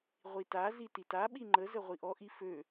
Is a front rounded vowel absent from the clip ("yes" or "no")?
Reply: no